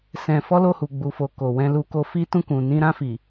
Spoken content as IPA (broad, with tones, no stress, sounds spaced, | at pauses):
s ɛ̃˧ f ɔ˦ l o˦˨ h u˨ ɡ͡b u˨ f o˨ k o˨ w ɛ̃˧ l u˧ k o˧ f i˦ t ũ˦˨ k ũ˨ n ĩ˧ ɾ ã˧ f i˨